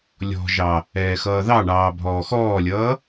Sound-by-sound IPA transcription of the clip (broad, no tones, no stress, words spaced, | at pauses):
lʲɔ̤ʒɑ | ɛːxʌːðɑɳɑː bʱɔːxɔːlʲʌː